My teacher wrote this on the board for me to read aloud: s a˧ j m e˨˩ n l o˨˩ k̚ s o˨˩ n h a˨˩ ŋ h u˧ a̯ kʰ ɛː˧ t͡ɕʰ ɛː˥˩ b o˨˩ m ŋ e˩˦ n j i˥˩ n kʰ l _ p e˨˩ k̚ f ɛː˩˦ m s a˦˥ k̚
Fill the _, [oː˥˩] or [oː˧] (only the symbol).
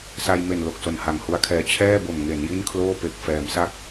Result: oː˥˩